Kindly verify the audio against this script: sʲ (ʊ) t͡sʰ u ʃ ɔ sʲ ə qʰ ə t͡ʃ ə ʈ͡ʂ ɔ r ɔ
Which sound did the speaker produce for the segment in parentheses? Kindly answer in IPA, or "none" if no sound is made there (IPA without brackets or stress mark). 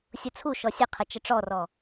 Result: ʊ